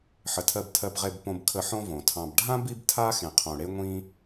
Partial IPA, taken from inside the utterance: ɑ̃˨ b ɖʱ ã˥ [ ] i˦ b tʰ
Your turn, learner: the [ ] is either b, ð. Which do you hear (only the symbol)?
b